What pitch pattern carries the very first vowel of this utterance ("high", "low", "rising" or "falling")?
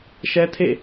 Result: high